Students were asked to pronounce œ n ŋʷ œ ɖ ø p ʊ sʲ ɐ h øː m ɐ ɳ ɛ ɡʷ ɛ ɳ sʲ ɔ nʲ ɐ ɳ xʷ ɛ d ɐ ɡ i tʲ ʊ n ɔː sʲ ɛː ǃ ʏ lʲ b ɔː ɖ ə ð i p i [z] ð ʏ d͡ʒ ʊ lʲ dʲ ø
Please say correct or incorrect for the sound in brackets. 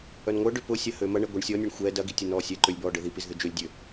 correct